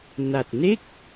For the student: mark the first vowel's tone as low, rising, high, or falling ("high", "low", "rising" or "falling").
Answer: low